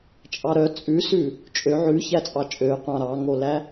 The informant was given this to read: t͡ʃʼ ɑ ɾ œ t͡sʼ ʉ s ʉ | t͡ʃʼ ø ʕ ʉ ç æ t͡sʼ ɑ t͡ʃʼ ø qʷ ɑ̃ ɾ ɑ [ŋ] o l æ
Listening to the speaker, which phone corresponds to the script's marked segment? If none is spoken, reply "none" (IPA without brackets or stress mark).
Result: ŋ